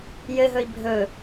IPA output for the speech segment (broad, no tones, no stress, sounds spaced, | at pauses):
j ɘ ɦ ɵ i̯ bʱ ɵ